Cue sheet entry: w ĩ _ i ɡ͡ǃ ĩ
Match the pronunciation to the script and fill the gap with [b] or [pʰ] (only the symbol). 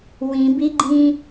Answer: b